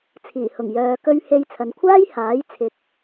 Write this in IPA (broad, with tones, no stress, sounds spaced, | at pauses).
t͡sʰ iː˨˩ h ʊ˨˩ ŋ j œː˨ k ɵ˧ ɥ h e˧ j t͡sʰ ɐ˨ n kʷʰ aː˥ j h aː˨˥ j t͡sʰ ɪ˨ k̚